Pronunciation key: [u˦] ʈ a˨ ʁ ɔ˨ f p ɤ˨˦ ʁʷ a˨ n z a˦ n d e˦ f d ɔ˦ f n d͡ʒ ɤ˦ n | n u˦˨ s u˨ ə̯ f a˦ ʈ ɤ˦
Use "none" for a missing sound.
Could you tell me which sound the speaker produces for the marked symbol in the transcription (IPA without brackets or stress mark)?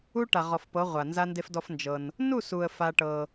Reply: u˦